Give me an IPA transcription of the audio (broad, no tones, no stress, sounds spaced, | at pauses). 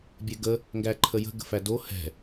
bʲ ɛ ɡ ə | ŋ ɡ æ ǃʰ ə j ə̤ ɡ ə̤ f æ d o h ɛ̤